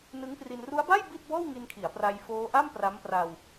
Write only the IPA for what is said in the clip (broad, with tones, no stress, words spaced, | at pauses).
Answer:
nɯ˦˥ŋpri˧n ru˦˥a̯ba˥˩j bi˥˩t̚bɔː˥˩wŋi˧nkʰi˩˦a̯ pra˧jfoː˦˥ʔa˥˩m pra˦˥mpra˧w